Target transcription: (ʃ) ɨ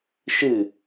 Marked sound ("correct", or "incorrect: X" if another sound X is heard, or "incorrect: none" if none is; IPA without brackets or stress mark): correct